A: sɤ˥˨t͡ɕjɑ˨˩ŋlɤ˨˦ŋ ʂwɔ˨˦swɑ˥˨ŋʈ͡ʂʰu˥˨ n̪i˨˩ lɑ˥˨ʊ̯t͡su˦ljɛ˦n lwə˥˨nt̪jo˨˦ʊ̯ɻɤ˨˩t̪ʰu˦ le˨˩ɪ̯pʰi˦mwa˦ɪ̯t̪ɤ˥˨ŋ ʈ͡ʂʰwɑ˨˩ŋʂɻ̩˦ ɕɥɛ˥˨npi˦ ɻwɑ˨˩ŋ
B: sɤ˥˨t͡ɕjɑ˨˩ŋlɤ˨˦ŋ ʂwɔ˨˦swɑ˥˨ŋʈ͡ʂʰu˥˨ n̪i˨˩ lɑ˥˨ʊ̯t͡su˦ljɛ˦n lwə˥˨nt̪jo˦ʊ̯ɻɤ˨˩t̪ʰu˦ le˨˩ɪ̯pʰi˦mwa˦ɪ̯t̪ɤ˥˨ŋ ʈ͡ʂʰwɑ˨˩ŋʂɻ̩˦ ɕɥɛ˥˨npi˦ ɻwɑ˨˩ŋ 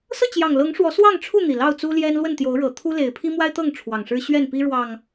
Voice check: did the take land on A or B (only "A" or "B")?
A